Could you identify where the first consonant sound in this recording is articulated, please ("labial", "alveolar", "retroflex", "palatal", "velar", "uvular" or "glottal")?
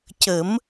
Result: palatal